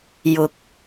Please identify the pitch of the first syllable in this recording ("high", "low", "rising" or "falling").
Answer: rising